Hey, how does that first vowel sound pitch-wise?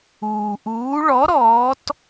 low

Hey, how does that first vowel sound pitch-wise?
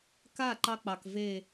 falling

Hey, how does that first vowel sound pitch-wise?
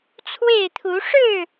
falling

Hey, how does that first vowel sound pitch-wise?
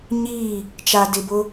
falling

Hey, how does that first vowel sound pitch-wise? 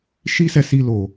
high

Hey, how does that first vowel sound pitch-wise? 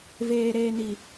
high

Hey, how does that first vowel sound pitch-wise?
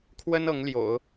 high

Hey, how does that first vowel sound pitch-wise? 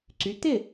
rising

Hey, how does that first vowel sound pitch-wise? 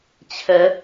rising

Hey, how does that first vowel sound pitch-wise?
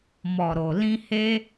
low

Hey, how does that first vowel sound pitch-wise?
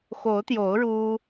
rising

